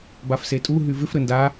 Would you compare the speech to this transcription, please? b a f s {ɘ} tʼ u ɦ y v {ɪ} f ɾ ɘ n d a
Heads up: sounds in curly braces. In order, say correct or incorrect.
incorrect, correct

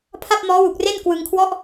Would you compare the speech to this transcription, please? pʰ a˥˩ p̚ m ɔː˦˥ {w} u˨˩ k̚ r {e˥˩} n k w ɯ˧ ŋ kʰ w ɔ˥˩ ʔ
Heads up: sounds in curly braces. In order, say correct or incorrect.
correct, correct

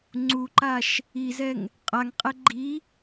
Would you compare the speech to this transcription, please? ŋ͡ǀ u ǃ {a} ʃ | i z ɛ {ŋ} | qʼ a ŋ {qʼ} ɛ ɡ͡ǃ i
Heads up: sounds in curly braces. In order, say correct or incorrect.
correct, correct, correct

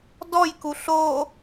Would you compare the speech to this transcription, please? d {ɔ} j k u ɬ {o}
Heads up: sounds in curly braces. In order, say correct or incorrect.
correct, correct

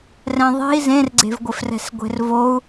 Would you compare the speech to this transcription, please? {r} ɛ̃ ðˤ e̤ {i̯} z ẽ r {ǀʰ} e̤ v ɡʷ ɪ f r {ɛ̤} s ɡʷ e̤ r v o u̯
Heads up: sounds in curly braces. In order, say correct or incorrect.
correct, correct, incorrect, correct

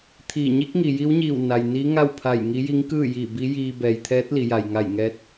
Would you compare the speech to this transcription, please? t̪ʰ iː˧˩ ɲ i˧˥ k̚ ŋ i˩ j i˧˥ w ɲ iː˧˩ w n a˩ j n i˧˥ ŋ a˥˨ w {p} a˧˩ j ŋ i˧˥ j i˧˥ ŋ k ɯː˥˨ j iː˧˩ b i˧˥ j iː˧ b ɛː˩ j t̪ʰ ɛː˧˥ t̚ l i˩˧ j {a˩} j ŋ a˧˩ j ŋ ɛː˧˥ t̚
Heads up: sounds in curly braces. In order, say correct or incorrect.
incorrect, correct

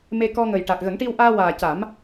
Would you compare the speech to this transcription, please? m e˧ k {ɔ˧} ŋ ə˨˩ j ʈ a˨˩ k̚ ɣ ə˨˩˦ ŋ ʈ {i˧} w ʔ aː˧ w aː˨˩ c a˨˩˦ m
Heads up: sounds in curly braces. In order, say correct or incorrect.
correct, correct

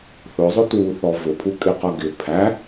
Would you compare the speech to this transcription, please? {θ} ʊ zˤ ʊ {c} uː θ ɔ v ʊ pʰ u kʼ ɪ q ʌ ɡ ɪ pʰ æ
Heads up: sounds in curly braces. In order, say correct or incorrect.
correct, incorrect

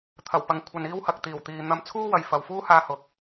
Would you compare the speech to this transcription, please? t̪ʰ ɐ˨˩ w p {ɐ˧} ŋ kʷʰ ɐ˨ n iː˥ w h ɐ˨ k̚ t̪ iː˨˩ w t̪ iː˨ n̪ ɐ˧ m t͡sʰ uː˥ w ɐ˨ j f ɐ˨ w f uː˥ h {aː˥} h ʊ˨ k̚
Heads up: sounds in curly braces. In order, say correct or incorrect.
incorrect, incorrect

